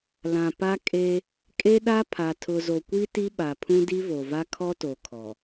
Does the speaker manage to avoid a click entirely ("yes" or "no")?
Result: yes